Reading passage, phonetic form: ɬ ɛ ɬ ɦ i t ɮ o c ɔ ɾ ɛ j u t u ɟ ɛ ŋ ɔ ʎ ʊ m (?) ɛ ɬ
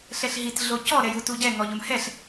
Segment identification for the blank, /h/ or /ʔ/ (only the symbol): h